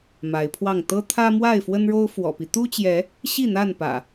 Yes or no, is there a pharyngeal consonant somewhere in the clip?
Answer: no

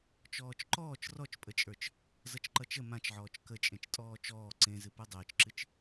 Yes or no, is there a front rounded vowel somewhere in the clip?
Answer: no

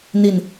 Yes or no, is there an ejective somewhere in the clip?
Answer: no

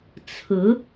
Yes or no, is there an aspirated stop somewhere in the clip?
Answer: yes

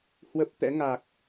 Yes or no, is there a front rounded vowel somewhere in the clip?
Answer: no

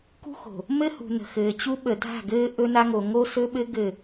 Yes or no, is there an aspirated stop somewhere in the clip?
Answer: no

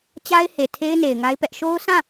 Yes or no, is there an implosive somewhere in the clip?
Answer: no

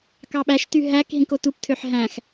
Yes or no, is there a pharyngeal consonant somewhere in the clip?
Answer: yes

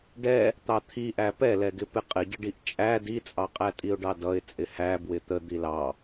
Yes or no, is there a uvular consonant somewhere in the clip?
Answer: yes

